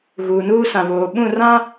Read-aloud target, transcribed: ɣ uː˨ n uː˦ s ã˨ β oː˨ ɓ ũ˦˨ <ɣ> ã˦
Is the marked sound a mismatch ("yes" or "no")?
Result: yes